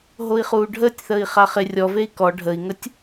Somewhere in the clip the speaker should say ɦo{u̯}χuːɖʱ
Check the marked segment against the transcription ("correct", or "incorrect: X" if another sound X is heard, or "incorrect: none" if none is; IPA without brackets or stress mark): incorrect: i̯